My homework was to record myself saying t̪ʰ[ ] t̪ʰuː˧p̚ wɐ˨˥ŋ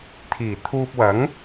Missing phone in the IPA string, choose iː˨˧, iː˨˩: iː˨˩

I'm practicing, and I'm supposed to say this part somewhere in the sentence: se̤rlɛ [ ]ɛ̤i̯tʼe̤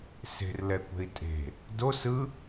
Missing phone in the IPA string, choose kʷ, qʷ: kʷ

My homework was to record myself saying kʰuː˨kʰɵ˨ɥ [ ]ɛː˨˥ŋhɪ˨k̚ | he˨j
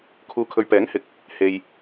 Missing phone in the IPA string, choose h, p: p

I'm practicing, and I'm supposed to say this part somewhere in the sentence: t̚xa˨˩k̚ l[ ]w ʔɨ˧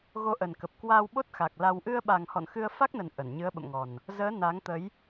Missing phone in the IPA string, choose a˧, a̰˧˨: a˧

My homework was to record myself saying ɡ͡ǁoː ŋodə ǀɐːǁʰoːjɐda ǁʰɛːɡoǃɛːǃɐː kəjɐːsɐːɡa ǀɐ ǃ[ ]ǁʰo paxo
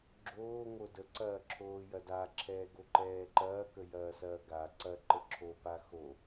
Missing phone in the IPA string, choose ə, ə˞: ə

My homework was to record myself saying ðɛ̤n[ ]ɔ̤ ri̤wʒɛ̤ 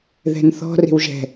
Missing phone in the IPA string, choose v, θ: θ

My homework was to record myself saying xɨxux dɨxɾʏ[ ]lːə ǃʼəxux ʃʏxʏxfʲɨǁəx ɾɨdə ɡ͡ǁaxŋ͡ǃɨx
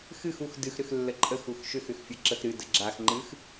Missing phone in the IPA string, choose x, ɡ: x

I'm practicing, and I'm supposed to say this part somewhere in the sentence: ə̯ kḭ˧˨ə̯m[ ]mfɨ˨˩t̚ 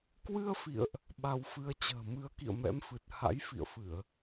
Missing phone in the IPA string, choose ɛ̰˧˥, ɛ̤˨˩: ɛ̰˧˥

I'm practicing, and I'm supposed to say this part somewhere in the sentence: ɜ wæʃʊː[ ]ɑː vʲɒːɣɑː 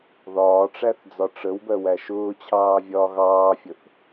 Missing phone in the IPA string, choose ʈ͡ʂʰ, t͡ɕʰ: t͡ɕʰ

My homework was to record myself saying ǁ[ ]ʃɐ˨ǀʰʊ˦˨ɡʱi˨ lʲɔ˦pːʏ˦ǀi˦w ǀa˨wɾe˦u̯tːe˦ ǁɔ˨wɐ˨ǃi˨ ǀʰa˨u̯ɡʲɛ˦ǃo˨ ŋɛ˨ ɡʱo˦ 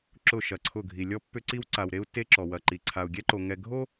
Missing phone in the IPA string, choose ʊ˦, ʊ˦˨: ʊ˦˨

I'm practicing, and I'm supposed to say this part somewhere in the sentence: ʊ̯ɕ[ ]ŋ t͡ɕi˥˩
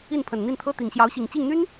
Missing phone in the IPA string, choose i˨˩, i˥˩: i˨˩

